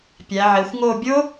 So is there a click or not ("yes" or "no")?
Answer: no